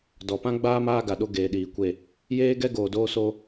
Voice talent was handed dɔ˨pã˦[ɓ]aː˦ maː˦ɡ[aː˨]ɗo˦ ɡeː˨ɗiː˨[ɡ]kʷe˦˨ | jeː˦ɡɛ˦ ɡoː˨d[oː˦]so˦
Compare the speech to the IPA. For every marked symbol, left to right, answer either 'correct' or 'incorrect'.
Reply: incorrect: ɡ͡b, incorrect: a˨, incorrect: none, correct

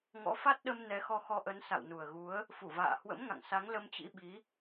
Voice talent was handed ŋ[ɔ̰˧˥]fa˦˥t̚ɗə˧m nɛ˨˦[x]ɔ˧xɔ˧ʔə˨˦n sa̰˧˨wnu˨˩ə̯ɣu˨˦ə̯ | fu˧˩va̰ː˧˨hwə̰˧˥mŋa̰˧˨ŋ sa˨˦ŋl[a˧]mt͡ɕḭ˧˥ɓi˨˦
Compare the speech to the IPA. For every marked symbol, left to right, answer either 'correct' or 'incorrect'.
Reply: correct, correct, incorrect: ə˧

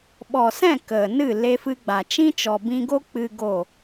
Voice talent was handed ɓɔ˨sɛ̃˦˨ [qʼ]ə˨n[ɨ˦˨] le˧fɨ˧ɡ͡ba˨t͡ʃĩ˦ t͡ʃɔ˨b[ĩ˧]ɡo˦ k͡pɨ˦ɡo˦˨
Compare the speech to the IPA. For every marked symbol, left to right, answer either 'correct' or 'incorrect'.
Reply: incorrect: k, correct, correct

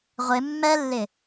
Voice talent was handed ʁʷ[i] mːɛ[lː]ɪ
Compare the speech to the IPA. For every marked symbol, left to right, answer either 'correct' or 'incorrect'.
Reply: incorrect: ɪ, correct

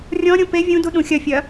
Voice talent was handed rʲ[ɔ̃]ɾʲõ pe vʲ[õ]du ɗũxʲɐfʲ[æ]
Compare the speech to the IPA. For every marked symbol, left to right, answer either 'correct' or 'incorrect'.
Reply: correct, incorrect: ũ, incorrect: ɐ

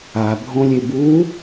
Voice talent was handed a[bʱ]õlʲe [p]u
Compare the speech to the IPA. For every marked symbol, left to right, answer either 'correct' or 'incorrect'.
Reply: correct, incorrect: b

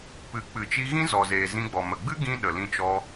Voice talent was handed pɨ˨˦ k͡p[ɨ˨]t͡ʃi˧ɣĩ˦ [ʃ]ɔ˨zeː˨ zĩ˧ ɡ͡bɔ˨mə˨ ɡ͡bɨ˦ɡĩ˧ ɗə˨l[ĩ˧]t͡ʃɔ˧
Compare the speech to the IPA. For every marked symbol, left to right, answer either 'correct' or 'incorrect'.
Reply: correct, incorrect: z, correct

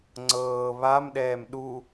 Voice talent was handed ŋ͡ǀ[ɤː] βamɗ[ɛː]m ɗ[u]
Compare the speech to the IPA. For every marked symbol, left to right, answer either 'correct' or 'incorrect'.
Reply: correct, correct, correct

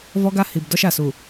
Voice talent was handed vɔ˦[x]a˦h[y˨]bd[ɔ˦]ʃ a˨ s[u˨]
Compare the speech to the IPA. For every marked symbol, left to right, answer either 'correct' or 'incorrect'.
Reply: incorrect: ɡ, incorrect: i˨, correct, correct

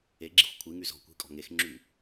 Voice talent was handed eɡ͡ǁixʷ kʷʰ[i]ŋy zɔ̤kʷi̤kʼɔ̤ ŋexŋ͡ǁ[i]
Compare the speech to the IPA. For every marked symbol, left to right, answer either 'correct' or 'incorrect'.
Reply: correct, incorrect: y

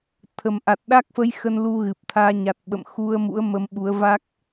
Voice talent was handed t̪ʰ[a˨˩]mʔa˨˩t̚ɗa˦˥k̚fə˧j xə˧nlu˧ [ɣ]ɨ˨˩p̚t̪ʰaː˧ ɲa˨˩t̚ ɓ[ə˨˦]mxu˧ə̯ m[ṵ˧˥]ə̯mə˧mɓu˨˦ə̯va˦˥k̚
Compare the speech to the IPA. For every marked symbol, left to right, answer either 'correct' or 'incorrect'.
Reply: incorrect: ə˨˩, correct, incorrect: ə̰˧˨, correct

